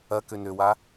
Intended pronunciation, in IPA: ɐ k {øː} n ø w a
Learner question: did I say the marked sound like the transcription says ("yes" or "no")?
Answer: no